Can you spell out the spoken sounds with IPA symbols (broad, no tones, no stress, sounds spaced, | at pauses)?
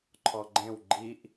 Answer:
ǃʰ ɔ ɡ͡ǃ ẽ w ɡ͡ǃ i ʔ